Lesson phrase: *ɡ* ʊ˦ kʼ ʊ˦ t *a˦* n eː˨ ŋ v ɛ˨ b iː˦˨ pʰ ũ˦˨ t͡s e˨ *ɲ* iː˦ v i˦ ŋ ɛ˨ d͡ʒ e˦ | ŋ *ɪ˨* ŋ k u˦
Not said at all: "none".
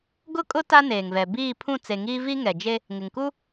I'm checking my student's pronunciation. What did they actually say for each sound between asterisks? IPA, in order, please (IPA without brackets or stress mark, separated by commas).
ɡ, a˦, ŋ, ɪ˨